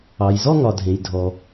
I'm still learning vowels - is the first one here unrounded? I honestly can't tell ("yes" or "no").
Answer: yes